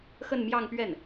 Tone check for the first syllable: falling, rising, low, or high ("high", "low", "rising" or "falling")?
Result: falling